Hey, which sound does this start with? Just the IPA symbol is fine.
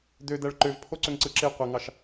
d̪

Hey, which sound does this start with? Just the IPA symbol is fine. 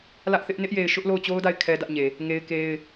l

